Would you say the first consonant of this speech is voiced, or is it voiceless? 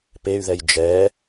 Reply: voiceless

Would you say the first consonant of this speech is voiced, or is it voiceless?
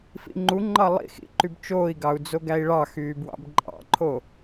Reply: voiceless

